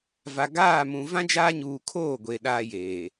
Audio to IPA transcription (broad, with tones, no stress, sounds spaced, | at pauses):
v a˨ ɡ aː˦˨ m ũ˨ v ã˦ d͡ʒ aː˦ ɲ uː˨ kʰ oː˦˨ ɡʷ e˨ ɗ aː˦ j eː˨